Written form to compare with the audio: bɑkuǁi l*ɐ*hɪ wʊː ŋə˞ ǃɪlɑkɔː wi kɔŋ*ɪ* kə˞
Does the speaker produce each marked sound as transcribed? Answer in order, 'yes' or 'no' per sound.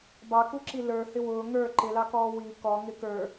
no, yes

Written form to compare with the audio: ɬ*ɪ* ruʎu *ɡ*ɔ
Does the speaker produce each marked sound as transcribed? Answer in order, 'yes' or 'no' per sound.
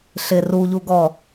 yes, yes

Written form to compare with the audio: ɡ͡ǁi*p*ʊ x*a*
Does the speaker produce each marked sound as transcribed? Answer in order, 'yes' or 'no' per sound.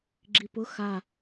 yes, yes

